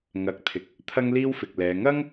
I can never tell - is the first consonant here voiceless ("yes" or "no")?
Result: no